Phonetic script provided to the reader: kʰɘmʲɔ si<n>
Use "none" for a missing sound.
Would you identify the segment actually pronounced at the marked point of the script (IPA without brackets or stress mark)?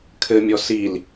l